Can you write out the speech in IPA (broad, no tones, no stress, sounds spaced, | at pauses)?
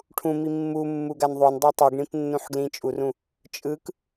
ʈʰ ũ m i mː u mː u ɡ a n ðˤ o n dˤ a tˤ u ɡ ɳ ĩ p nː ũ ħ ɡ l ĩ t͡ʃʼ u r ũ | t͡ʃʼ ɯ k